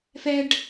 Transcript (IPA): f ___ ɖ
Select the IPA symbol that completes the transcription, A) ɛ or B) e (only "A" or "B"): A